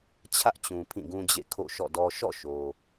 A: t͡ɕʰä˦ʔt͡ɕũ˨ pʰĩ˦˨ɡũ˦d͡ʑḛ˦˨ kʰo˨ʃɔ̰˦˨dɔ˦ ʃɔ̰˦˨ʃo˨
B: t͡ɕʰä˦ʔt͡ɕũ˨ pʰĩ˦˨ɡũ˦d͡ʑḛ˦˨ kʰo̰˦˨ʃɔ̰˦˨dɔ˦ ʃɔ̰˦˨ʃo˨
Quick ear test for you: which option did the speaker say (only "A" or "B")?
B